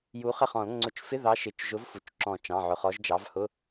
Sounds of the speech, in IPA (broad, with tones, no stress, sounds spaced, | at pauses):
j u˨˥ χ ə˥˩ χ ɔ̃˨˩˦ l ŋ͡ǀ ʊ˧˥˧ t͡ʃ f ɪ˧˥˧ ð ɑ˨˥ ʃ ɪ˩˧˩ t͡ʃ ʒ ʊ˨˥ v f u˩ t͡ʃ ǁ ɔ̃˨˩˦ t͡ʃ ɑ̃˩˧˩ ʕ ʊ˩ χ ɔ˨˥ ʒ d͡ʒ ɑ˨˥ v h ʊ˧˥˧